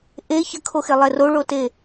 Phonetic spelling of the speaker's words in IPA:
ʔe çəkʰoxelˠɛ roɭote

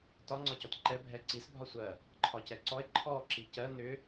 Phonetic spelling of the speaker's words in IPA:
tɒ ŋ͡ǀɒcɔtǃɛ bʱɛǀis bʱɒsʷɜ | ǃʰɒcɛǀɔe̯ ǃʰɔ ǁicɜ nʏ

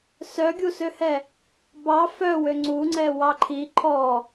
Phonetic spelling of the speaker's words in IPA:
sœɡʲusøhɛ | bɑ fœwø ŋ͡ǀuŋ͡ǀɛ wɑǃʰi ǃʰɔ

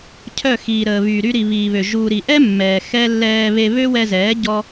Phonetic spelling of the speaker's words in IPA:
cʰœ˦˨xiː˨ɾəː˨ βy˨ɾy˧ ɾi˨βiː˨βø˨ ʒuː˨ɾi˨ʔɛ˦ mːɛː˨ xɛ˦ lːɛː˧βe˧ βø˦wɛ˧zɛː˨˦ ɟɔ˦

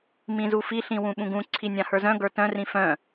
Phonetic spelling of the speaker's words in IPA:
mĩzufi ɬĩwũɓũɡũ ǀʰinʲãhə˞zœ̃ ɡə˞tœ̃ rĩfœ̃

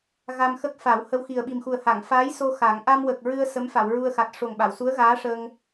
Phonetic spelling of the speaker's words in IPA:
ɣa˧mxə˦˥k̚fa˨˩˦w hə˧wxi˨˩ə̯ɓi˨˩mxu˨˩ə̯ ha˨˩˨ŋfaː˧˥jso˧ xa˨˩˦ŋ ʔa˧mwə˨˩k̚ ɹɨ˧ə̯ sə˧˥mfa˨˩˨wɹu˧ə̯xa˨˩t̚ ʂo˨˩ŋɓa˨˩˨w su˧˥ə̯ɣaː˧˥ʂəː˧ŋ

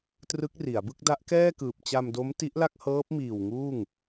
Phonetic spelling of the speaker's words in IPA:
trɯ˦˥k̚ri˩˦a̯bɯ˥˩k̚ da˦˥ʔkɛː˥˩kɯː˨˩p̚ t͡ɕa˧mdo˦˥m ti˦˥ʔla˥˩k̚hɤː˦˥p̚ miː˨˩w ŋuː˥˩ŋ

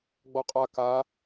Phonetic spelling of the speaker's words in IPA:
ɡ͡bɔqʼa ka

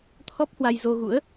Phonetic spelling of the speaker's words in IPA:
t̪ʰɔ˦˥p̚hwa˧j zo˧ɣṵ˧˥ə̯

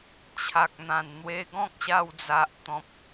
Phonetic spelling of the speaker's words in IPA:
t͡ɕʰa˨k̚n̪ã˨˩nn̪we˧ ɡɔ̃˦k̚ɕa˧wd͡za˨ʔ t̪ɔ̃˨p̚

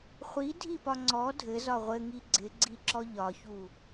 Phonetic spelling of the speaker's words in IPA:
χʷidʱipɒ ŋ͡ǀɔ dʱɘzɒ ʁʷɘŋi ɡ͡ǀɪɡ͡ǀiǁɔ ʎɒçu

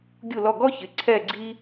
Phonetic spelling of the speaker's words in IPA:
ɡʲu˥˧lɔ˥˧ ɡɔ˥çɪ˩˧˩ ǀʰɛ˥˧ɡ͡ǀi˥

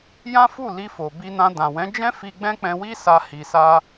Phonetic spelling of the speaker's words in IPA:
jã˦fu˦˨ li˧fo˨ bi˧nã˧ dã˨wɛ̃˨˦d͡ʒɛ̃˦ fi˧ɡ͡bɛ̃˦k͡pɛ̃˧wi˦ sa˧hi˨sa˧

